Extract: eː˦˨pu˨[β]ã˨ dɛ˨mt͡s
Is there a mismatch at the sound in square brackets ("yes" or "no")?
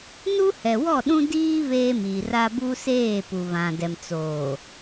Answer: no